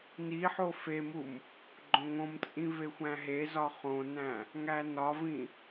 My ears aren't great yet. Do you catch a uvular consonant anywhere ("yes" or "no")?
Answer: yes